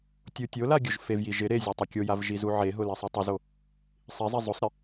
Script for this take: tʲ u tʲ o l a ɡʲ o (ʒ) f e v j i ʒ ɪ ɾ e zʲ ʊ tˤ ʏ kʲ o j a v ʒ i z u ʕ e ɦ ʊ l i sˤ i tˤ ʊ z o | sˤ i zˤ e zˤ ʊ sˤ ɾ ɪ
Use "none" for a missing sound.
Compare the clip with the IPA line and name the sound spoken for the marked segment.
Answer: ʒ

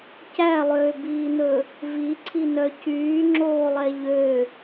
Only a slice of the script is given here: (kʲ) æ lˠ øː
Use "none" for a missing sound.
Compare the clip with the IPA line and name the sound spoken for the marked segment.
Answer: c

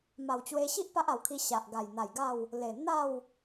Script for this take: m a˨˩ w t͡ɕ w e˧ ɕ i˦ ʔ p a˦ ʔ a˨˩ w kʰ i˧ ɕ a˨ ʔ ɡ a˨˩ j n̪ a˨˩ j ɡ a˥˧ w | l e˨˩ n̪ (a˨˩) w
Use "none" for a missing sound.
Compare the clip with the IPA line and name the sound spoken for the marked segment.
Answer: a˥˧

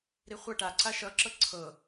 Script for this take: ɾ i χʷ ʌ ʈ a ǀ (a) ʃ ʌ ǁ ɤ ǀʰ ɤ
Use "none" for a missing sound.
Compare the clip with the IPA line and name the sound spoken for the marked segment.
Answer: a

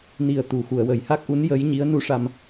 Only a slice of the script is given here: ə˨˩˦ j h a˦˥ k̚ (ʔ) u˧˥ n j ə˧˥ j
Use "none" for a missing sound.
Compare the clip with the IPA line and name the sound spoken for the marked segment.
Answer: ʔ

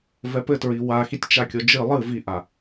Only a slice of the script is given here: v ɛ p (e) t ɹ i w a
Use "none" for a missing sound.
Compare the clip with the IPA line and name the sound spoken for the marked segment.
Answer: ɘ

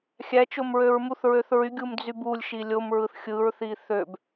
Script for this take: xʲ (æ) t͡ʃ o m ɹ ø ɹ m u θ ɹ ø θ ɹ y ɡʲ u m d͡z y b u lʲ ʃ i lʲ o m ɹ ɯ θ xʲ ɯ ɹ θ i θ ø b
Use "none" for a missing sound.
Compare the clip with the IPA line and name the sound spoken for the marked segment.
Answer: æ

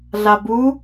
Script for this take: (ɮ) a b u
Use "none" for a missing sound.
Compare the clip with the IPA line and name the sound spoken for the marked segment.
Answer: ɮ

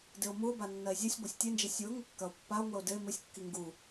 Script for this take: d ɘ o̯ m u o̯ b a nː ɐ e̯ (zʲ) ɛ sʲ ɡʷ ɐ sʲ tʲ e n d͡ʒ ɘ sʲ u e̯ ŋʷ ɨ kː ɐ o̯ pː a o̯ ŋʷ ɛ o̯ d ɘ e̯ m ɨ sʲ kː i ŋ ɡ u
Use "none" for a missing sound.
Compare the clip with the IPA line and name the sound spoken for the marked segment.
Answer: zʲ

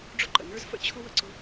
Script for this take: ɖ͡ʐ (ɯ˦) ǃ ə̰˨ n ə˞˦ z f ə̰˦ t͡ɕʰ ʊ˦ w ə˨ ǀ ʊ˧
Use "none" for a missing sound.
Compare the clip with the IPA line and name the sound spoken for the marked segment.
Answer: ʊ˦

